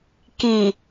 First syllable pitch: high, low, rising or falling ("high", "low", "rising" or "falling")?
low